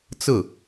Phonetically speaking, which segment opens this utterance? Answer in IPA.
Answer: t͡s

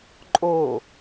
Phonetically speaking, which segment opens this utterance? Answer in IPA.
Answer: ǃʼ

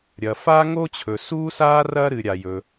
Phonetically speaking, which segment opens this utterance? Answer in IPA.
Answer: ɾʲ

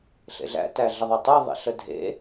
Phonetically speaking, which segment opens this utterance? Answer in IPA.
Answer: ɬ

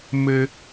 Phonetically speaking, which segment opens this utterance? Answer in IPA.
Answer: m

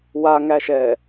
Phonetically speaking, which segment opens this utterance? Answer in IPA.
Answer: w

